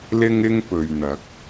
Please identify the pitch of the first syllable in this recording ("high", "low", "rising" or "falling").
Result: high